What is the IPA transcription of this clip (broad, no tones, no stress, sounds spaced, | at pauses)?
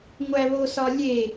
ŋʷ æ β o s ɒ lʲ e